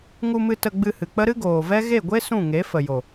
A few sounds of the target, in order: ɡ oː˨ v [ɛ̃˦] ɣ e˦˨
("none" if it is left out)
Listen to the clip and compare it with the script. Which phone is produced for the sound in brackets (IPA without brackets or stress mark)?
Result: ɛ˦